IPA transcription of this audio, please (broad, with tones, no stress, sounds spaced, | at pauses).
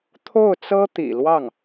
t̪ʰ o˥˩ ʊ̯ t͡s ɤ˥ t̪ ḭ˨˩ l w ɑ˥˩ ŋ